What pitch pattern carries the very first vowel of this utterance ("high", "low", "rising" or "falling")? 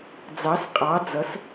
rising